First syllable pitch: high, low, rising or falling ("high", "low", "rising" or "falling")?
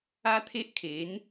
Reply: high